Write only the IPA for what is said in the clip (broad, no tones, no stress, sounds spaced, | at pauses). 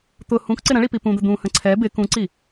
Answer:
t̪ ʊ h ũ k ǀ ɪ ɾ ə̃ ɭ i p i p ũ d̪ ə d̪ ũ h ə̃ ǀʰ ɛ b ɪ k ũ ǀ i